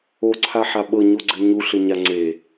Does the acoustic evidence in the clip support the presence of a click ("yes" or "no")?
yes